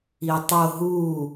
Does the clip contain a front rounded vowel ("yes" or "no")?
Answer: no